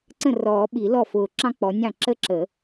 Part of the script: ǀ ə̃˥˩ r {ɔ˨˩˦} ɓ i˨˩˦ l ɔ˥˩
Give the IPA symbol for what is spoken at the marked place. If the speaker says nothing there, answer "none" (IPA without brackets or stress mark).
ɔː˨˩˦